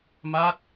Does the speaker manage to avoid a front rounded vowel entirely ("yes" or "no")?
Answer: yes